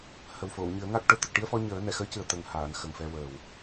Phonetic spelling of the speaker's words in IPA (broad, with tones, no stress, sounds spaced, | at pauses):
h ə˨˩ w f o˨˩˨ w ɲ ɨ˨˩˦ ə̯ ŋ a˦˥ k̚ ʈ ə˨˩ w t̪ ə˨˩ k̚ ʈ i˧ ə̯ f ɔ˧ ɲ əː˨˩˦ n ɛ˨˩˨ x əː˧˥ c ɨ˨˩ ə̯ t̪ ə˨˩ ŋ h aː˨˩˨ n x ə˨˩ ŋ f ɛ˧ w əː˨˩ w